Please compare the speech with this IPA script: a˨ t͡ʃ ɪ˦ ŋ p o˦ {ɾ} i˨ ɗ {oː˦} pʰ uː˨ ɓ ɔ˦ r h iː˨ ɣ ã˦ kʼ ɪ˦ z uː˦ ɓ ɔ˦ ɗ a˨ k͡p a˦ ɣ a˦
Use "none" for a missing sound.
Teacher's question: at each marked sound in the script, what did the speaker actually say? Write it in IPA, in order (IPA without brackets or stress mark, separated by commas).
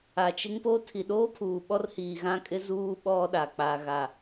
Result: tʰ, oː˦